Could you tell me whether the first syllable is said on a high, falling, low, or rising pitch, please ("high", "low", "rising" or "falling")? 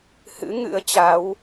rising